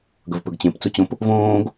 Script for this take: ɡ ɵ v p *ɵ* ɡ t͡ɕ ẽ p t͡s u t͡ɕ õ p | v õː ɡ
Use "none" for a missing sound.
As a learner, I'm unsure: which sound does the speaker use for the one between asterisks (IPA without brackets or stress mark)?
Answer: ɵ